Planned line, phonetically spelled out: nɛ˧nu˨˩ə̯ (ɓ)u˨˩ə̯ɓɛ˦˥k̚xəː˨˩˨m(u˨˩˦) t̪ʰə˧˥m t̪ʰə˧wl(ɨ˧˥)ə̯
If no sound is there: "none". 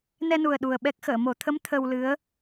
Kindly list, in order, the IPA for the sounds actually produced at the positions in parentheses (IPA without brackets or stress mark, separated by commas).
ɗ, o˨˩˦, ɨ˧˥